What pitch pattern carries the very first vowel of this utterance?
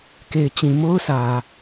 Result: low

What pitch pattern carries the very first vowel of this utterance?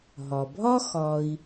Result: low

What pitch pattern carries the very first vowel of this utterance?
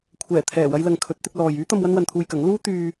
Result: low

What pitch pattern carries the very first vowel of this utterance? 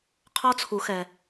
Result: high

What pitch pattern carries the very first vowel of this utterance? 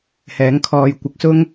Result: rising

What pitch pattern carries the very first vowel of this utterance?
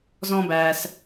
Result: high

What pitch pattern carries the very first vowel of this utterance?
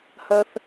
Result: high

